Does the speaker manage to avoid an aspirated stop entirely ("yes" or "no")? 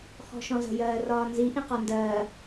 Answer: yes